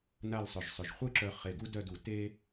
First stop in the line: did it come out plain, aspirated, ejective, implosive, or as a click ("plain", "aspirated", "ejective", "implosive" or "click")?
click